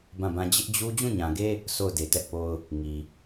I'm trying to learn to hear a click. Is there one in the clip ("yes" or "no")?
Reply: no